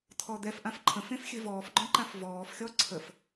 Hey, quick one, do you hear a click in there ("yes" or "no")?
yes